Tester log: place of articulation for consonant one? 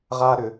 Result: uvular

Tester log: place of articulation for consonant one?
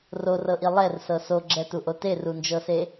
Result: alveolar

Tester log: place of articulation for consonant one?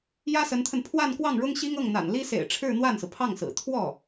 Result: palatal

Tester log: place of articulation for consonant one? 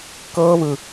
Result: velar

